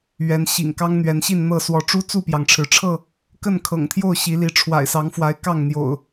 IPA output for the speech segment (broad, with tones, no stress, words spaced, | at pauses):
ɥɛ˨˦n ɕḭ˨˩ŋkɑ˦ŋn̪ɥɛ˨˦nɕi˥˨n n̪ɤ˥˨ swɔ˨˦ʈ͡ʂu˦ t͡su˥˨pjɑ˩ŋʈ͡ʂʰɻ̩˩ʈ͡ʂʰɤ˥˨ | kə˥˨nkʰɤ̰˨˩ŋt̪ʰjo˥˨ʊ̯ ɕi˨˦li˨˦ ʈ͡ʂʰwa̰˨˩ɪ̯sɑ˨˦ŋfwa˨˦ɪ̯ kɑ˥˨ŋn̪jo̰˨˩ʊ̯